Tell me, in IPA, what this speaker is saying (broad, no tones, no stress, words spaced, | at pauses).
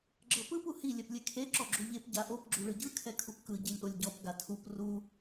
ɡ͡ǁɤpɯp uhi lʲɛplʲekʰe ǁɔɡ͡ǁuʎep ɟaʔop ɡ͡ǁuɭɯɟɯ kʰɛkʰupkɯ ɟilʲʔolʲɟɔp ɡatʰup ru